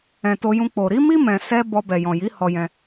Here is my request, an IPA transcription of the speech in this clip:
ɛ̃˨ t o˧ j ũ˧ k͡p o˨ ɾ i˨˦ m i˦ m ɛ̃˧ s ɛ˦ b ɔ˧ b ɛ˨ j ɔ̃˨ j i˨˦ h ɔ˧ j ɛ̃˧

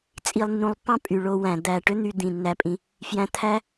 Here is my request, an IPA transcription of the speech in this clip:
t͡sʼ i˨ lˠ nː ũ˨ lˠ pː ɑ̃˥ pʼ y˩ ɭ o˨ w æ̃˩ d̪ æ˨ ʈ ø˥ n̪ y˨ d̪ ĩ˩ nː æ˩ pʼ ĩ˩ | f j æ̃˨ t̪ʰ æ˦

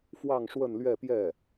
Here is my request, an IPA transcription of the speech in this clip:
f w ɑ˥˧ ŋ ʂ w ə˥˧ n l ɥ ɛ˥˧ p j ɛ˥˩

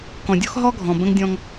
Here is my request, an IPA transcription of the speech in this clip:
k ɔ̃˨ dʲ ɔ˦ x ɦ ɔ˦ ɡʱ ɔ̃˨ b ə̃˦ ŋ dʲ ɔ̃˦ ŋ

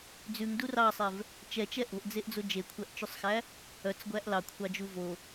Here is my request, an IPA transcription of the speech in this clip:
d͡z ʉ ŋ d u r ɑ sˤ ɛ v | t͡ʃ ɛ t͡ʃ ɛ ʔ o̤ ʔ d͡z e ʔ d͡z o d͡ʒ e kʷʰ æ ʔ t͡ʃ ʉ sˤ x æ | œ t͡s ɡʷ æ ʔ l ɑ kʷʰ ɑ d͡ʒ u v o

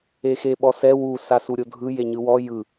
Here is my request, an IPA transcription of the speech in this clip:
e x e ɓ ɔ s ɛ w u s a s u ɾʲ o dʱ ɯ j e ɲ ɯ w ɔ j ɯ

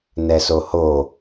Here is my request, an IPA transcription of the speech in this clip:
n ɛ s o h o

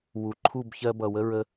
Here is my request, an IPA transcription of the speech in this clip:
w u˨ ǃʰ u˦˨ b ç ɜ˧ b ʌ˨ w ə˦ ɹ ə˧

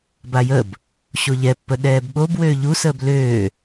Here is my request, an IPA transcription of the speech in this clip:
b a j ə b | ɕ o ʎ ɛ pː ə ɗ ɛː b ɓ o b w øː ʎ u s əː b l øː

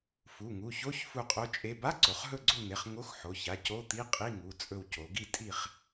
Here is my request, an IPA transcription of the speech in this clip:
f u˩˧˩ ŋ u˩˧˩ ç o˧˥˧ ç f u˦˨ qʼ o˧˥˧ t͡ʃʼ e˧˥˧ b a˧˥˧ ǀ o˩˧ χ ɦ ɵ˦˨ ɡ͡ǀ o˦˨ n̪ e˩˧˩ χ ŋ o˧˥˧ x ħ o˩˧˩ ç a˩˧˩ c o˧˥˧ t̪ i˧˥˧ qʼ i˧˥˧ ŋ u˩˧˩ t͡sʼ ɵ˦˨ w c o˩˧ ɡ i˦˨ tʼ i˦˨ χ

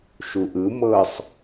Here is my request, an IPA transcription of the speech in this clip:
ʃ u ʔ ɯ m ɤ sˤ

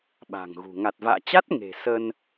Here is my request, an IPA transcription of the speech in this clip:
ɓ a̤˨˩ ŋ ɣ ṳ˨˩ ŋ a˨˩ t̚ v a̰ː˧˨ t͡ɕ a˦˥ t̚ ŋ e̤˨˩ s ə˧ n

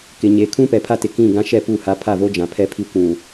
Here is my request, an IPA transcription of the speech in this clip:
k ɪ˨ ɲ e˨ kʰ ũ˦ p ɛ˨ pʰ a˦ t ɪ˨ k ĩ˦˨ ɡ ã˦ ʃ ɛ˦˨ p u˦˨ h a˦ pʰ a˦˨ v o˦ d͡ʒ ã˨ pʰ ɛ˦ pʰ i˦ kʷ ũ˨

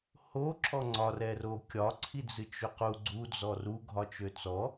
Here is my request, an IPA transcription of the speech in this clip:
h o ǁʰ ɔ ŋ͡ǀ ɒ r ɛ r o kʲ ɒ ǀʰ i d͡z ɨ t͡ʃ ø q u ɡ͡ǀ u d͡z ɔ r u ɡʱ ɒ t͡ʃ ø t͡s ɔ

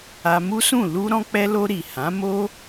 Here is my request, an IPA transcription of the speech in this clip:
a˧ m u˦ s ũ˦˨ l u˧ ɾ ɔ̃˧ k͡p ɛ˧ l o˧ ɾ i˨ h ã˨˦ m o˦

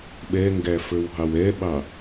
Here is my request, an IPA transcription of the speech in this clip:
ɓ ɛ ŋ ɡ æ f ə˞ w ɦ ɑ w ɛ ɓ ɑ

